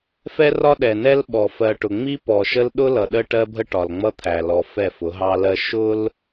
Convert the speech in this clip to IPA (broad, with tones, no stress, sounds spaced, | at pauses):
f ɛ˦ r ɒ˦ ɗ ɛ˨ n ɛ˦ l ɓ ɔ˨ f ɜ˨ ʈ ʊ˨ ŋ͡m i˦ p ɔ˨ ʃ ə˦ l ɗ ʊ˦ l ʌ˨ ɗ ə˦ ʈ ɜ˦ bʱ ə˦ ʈ ɒ˨ l ŋ͡m ʌ˦ t̪ʰ æ˨ l ɔ˨ f ɛ˦˨ f ʊ˨˦ ɦ ɑ˦ l ɜ˦ ʃ ʊ˦ l